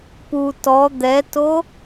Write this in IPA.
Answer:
p u t ɔ d̪ ɛ t o

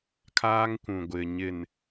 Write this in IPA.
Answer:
kʰ aː˦ ŋ kʷ ũ˨ ɡʷ ɪ˨ ɲ ɪ˨ n

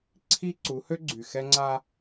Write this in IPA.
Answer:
ǀʰ i˦ ǀ u˨˦ h ø˦ ɡ͡ǀ y˨ x ɛ˦ ŋ͡ǀ a˦

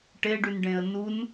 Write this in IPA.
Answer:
ʈ e ɖ y n ɖ ẽ ə̯ n u n

